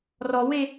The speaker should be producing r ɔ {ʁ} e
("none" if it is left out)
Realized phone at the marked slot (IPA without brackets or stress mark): w